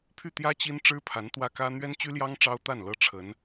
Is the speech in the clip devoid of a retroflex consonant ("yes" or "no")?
no